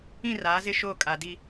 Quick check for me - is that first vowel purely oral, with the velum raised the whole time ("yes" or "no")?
no